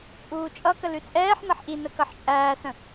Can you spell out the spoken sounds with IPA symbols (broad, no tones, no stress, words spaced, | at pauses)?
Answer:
t͡sʼuːt͡ʃʼʌkə lʉt͡sʼɛːħnʌħ ʔinə kʌħt͡ʃʼæːsə̃